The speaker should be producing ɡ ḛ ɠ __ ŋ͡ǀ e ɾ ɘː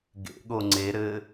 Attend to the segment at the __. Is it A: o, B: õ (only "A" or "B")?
A